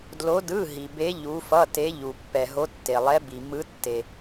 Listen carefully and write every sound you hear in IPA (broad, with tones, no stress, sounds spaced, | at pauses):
d l o˧˥ d ɯ˧˥˧ ɦ i˨ b e˧˥ ʎ u˧˥ f ʌ˧˥˧ t e˧˥ ʎ u˨ pː ɛ˨ ɦ o˧˥ tː e˨ lˠ ɛ˧˥ b i˨ m ɯ˧˥ tː e˨